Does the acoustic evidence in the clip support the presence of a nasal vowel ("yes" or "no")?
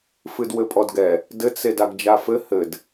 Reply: no